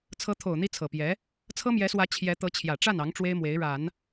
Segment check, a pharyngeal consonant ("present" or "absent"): absent